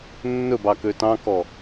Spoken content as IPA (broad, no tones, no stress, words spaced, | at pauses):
nːɵbɑ køtɑ̃kɔ